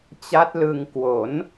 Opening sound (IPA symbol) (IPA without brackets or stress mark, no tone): t͡ɕ